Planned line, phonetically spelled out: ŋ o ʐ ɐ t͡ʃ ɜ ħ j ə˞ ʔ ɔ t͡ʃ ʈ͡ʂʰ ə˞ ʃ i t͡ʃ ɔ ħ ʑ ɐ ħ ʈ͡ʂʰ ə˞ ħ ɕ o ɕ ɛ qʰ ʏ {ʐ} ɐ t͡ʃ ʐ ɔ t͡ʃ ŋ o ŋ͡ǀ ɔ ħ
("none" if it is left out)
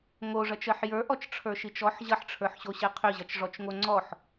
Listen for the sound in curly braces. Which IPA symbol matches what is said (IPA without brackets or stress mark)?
ʑ